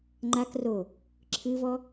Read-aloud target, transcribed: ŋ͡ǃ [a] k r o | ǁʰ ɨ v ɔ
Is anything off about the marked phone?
no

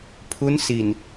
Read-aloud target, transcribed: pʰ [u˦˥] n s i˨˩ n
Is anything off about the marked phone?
no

